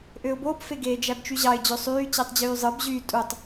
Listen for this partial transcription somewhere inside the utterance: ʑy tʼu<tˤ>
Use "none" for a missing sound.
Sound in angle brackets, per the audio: tˤ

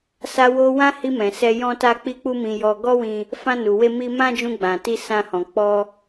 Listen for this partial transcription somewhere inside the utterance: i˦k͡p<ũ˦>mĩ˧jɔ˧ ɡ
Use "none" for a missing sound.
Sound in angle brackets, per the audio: u˦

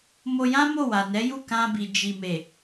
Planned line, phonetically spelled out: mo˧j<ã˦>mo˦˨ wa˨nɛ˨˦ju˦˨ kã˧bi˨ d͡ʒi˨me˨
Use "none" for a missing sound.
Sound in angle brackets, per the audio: ã˦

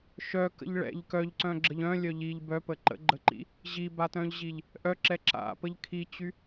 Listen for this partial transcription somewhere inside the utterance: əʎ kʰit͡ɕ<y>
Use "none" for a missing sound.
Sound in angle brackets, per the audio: y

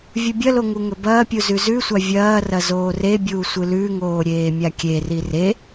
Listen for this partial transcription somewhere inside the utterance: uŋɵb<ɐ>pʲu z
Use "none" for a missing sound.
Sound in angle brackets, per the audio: ɐː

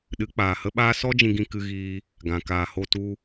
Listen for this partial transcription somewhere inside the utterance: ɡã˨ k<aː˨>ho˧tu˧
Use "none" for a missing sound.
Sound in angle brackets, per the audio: aː˨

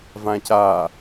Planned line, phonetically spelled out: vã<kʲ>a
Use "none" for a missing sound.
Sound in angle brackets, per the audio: c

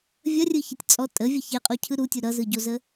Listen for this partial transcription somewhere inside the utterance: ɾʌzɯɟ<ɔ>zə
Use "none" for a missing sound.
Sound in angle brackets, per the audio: o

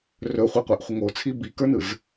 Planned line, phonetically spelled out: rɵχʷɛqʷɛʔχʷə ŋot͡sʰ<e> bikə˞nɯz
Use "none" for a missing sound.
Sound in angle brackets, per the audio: i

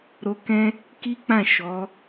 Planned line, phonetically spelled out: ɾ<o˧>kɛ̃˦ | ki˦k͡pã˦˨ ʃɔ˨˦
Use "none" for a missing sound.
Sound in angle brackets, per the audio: o˧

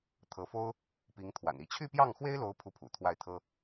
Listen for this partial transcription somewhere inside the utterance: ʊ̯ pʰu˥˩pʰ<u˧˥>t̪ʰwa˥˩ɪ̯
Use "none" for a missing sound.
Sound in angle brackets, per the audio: ṵ˨˩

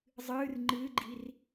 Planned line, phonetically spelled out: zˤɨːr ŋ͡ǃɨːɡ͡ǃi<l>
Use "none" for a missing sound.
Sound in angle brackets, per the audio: r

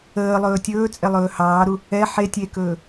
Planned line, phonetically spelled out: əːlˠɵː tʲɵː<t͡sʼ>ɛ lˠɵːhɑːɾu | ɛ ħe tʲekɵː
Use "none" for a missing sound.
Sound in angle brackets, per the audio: t͡sʼ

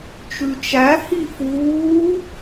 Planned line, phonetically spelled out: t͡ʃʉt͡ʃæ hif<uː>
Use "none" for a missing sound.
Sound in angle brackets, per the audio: uː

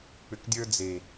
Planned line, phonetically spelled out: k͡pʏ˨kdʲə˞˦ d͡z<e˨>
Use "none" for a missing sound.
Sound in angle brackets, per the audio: e˨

